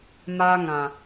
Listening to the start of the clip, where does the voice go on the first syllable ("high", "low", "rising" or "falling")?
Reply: high